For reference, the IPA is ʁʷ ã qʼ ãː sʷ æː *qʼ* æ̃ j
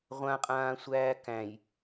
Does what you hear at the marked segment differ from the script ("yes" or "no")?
yes